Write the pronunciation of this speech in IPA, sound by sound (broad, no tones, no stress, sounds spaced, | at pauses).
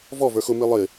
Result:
v ɔ v ə˞ x ʊ m i lˠ ɪ